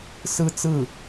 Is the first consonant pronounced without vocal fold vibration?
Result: yes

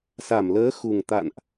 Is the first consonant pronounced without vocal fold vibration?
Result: yes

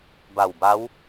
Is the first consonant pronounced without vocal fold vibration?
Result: no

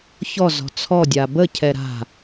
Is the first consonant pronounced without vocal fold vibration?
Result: yes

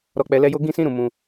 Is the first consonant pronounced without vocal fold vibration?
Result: no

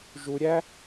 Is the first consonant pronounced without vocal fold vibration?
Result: no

